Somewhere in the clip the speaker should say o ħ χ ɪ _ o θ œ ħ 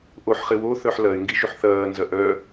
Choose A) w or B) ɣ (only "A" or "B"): A